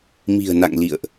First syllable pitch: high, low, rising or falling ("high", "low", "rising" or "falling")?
low